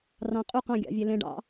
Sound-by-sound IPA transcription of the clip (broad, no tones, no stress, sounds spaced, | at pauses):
r ɑ̃ qʼ u q ɑ̃ ɡʲ ɑ̰ vʲ e l ẽ ɖ ɑ̰